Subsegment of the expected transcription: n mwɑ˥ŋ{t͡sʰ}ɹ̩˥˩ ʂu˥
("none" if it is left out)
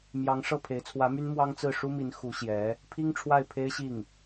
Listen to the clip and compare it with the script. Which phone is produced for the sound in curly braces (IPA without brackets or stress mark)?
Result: t͡s